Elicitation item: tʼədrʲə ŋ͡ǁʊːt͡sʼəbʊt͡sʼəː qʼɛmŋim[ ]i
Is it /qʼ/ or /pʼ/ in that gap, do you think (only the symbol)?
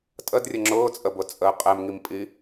pʼ